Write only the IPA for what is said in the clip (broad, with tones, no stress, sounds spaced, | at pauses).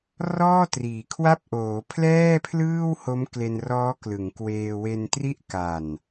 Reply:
r ɔː˥˩ t r iː˩˦ kʰ w a˥˩ p̚ ʔ oː˩˦ pʰ l ɛː˥˩ pʰ l ɯː˥˩ w h o˦˥ m k l e˧ n r ɔː˦˥ k l ɯ˩˦ ŋ k w eː˧ w e˧ n t r i˥˩ ʔ k a˨˩ n